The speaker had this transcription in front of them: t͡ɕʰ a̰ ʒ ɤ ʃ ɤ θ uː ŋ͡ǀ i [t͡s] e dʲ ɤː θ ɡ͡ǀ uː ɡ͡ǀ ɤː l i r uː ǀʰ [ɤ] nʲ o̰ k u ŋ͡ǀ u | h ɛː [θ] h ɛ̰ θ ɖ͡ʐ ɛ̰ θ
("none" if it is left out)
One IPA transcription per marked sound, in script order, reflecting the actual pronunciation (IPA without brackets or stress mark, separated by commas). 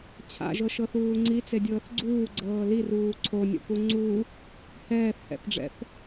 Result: t͡s, o, θ